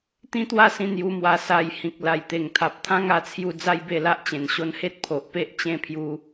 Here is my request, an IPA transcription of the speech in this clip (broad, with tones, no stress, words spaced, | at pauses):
t̪ĩ˦t̪wa˥˧sĩ˧ n̪ju˧mwa˧ sa˧j hĩ˨k̚la˨˩jt̪e˨˩ŋt̪ʰa˨p̚ t̪ʰã˦ŋa˧t͡sʰju˧ d͡za˦jbe˥˧la˦ʔ t͡ɕẽ˨˩nɕo˧nhe˦t̚ pʰo˨ʔpe˦ʔ t͡ɕẽ˥˧pʰju˧